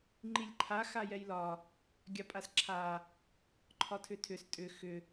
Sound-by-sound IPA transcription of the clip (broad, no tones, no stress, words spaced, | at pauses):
ŋ͡ǃilʲǃʰa xajɛjlɒ | ɡʲapʼasǁʰa | ǃʰɒtʰʏtʰʏs tʼʏ xʏ